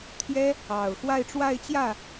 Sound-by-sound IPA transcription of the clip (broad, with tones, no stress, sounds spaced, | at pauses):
t̪ʰ j ɛ˥ | ɑ˨˩ ʊ̯ x w a˥˧ ɪ̯ ʈ͡ʂ w a˥˧ ɪ̯ t͡ɕ j ä˥˩